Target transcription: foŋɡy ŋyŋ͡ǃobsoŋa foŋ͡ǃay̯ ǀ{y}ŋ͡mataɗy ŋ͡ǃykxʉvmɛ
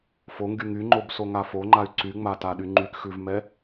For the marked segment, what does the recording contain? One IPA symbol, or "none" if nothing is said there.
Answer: y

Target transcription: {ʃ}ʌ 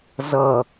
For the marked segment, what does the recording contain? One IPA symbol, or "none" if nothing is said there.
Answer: z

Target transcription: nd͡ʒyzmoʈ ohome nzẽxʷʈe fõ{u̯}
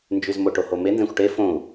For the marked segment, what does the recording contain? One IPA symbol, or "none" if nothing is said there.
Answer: u̯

